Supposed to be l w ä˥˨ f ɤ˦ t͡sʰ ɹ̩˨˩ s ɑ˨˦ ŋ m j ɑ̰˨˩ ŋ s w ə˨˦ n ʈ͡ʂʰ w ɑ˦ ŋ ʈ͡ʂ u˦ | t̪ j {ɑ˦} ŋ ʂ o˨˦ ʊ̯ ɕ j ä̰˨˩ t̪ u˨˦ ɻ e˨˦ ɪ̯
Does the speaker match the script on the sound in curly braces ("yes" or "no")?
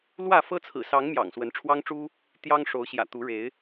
yes